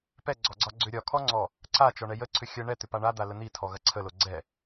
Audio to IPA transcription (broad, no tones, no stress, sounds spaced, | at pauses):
p ɛ ɡ͡ǀ ɔ ɡ͡ǀ ɒ ɡ͡ǀ ʏ ɾʲ ɒ kʰ ɔ ŋ͡ǀ ɔ | ǀ a t͡ʃ ɔ ɳ ɛ j ə ǀʰ ʏ xʲ ə ɳ ɛ t̪ ʏ p a ɳ a d̪ a l ə n̪ i tʰ ɔ ɣ ɐ ǀʰ ə l o ɡ͡ǀ ɛ